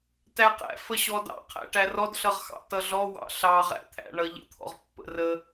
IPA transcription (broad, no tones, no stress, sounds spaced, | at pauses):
t æ q æ̰ f ə ɕ ɔ d ɑ̰ qʰ æ̰ ʈ æ r ɔ d ɬ ʌ ʁ x ɑ̰ t ʌ ɮ ɔ w ɑ̰ ɬ ɑ ʁ æ̰ t̪ʰ æ̰ ɳ ʌ ʎ ə̰ t̪ʰ ɔ̰ ʁ pː ə̰ r ə